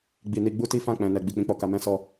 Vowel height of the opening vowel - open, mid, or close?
close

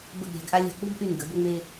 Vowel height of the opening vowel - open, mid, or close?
mid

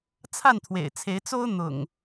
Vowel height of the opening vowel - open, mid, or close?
open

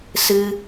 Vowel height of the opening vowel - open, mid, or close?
close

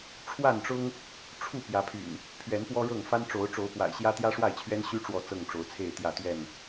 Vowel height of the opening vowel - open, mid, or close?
open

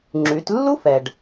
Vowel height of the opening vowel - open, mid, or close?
close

